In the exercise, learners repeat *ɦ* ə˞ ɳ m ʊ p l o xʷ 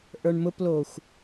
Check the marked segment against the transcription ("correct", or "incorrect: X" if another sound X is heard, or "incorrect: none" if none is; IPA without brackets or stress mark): incorrect: ʔ